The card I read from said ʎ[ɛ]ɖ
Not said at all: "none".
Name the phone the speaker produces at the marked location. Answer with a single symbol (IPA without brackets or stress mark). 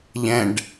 ɛ̃